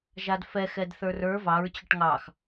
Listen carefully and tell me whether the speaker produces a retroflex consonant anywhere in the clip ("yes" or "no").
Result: yes